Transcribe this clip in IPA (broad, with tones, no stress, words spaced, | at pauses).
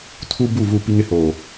tʰu˦ bu˦˨ vu˦˨pi˦ŋɪ˦hoː˨